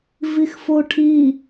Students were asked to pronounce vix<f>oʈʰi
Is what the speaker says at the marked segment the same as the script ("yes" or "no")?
yes